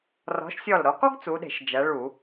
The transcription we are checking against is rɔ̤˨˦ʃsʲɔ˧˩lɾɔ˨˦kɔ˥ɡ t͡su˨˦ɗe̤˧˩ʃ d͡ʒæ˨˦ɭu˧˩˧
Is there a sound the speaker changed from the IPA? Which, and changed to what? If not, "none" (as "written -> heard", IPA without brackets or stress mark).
e̤˧˩ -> e̤˧˩˧